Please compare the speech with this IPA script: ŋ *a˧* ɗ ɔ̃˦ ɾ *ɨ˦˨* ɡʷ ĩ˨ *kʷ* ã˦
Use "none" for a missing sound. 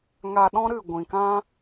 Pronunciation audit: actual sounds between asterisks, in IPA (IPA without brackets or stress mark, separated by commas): a˧, ɨ˦˨, k